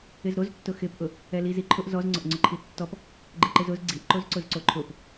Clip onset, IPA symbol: ɪ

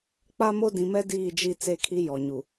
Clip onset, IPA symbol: k͡p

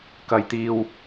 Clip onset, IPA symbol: k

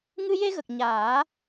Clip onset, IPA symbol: ŋ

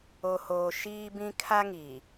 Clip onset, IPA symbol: o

